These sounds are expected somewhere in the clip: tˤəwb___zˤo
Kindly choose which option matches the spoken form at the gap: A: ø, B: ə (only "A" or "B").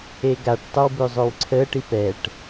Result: A